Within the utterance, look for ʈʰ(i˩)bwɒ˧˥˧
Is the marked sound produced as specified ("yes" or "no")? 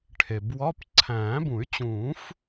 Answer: no